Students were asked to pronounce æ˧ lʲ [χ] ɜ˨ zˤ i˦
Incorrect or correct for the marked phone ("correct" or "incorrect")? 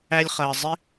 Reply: correct